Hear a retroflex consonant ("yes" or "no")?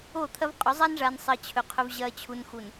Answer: yes